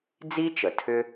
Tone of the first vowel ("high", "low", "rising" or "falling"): high